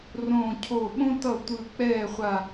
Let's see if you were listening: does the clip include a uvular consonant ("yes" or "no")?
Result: yes